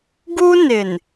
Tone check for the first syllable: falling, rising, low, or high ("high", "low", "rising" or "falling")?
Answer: high